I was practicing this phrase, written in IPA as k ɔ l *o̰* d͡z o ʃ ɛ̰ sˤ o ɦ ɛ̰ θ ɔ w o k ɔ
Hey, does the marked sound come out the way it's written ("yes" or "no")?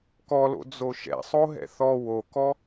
yes